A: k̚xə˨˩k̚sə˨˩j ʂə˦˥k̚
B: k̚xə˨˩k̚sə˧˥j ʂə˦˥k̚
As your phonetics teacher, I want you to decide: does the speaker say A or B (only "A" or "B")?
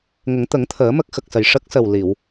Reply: A